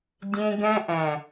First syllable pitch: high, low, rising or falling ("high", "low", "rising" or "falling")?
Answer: high